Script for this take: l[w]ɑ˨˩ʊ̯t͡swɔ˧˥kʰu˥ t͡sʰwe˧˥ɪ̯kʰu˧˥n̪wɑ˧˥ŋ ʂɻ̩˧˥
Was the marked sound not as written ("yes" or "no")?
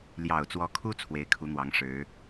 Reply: yes